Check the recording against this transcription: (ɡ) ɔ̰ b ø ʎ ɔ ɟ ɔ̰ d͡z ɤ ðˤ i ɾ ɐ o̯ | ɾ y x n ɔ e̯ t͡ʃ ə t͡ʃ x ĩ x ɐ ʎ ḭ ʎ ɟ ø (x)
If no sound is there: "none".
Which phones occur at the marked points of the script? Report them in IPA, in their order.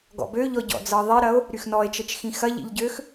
ɡ, x

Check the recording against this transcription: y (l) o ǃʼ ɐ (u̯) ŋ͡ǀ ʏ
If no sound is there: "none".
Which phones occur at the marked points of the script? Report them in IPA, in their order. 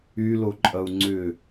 l, u̯

